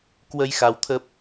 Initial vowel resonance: oral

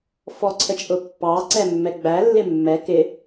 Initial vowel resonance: oral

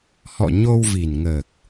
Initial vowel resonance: oral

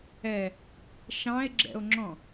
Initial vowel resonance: oral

